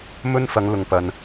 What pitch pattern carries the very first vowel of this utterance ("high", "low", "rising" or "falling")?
high